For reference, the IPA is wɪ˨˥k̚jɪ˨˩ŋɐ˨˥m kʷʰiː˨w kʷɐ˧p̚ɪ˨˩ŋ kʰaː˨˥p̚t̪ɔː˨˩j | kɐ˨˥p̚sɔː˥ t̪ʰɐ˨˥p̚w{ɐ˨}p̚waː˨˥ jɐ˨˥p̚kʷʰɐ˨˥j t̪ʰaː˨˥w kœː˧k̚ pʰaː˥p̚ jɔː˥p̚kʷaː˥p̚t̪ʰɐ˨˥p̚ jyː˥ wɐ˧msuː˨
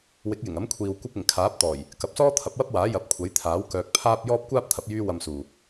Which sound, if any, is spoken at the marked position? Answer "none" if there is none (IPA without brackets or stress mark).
ɐ˥